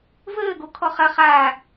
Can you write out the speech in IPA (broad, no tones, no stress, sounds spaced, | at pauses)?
v əː ɡ o kʰ ɔ χ ɐ χ aː